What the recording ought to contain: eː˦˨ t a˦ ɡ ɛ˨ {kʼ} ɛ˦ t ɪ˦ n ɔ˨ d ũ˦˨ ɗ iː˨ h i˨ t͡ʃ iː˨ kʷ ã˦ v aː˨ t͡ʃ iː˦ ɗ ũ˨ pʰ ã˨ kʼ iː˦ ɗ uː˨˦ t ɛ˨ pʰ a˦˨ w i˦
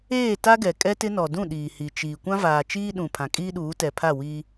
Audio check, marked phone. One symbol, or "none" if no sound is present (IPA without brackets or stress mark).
kʼ